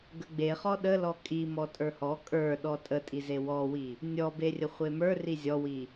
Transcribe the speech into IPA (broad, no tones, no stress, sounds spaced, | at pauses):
ɡ ə ɡ͡b e χ ɔ ɗ ə l ɔ kʼ i m ɔ tʼ ə˞ h ɔ kʼ ə˞ ɗ ɔ tʼ ə tʼ i z e w ɔ w i | nʲ ɔ b e rʲ ə χʷ e m ə˞ r i zʲ ɔ w i